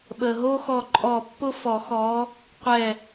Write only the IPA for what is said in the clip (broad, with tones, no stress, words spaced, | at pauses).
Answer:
ɓə˩ɦo˥ xɔ˧˩ǃʼɔ˧˩pːʊ˥ fɔ˨˩˦xɔ˨˦ | qʷɛ˧˩